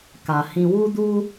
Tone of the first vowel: low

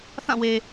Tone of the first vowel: falling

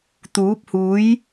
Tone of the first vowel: rising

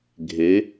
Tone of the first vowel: rising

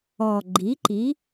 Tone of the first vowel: low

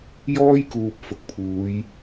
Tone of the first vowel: high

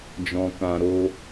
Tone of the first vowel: low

